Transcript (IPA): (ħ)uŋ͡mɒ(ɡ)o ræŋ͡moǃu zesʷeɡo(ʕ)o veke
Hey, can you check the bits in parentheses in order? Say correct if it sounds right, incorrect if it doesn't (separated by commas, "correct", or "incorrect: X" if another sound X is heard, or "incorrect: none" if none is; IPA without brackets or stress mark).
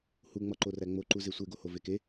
incorrect: h, incorrect: ǃ, incorrect: h